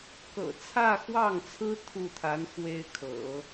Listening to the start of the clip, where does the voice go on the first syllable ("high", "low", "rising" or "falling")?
low